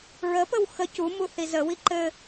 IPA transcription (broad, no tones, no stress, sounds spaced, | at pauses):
ɹ ə p ə w x ə c u m u θ i z ə w i ǃ ɘ